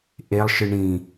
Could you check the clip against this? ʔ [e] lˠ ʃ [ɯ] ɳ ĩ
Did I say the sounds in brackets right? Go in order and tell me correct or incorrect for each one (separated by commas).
correct, correct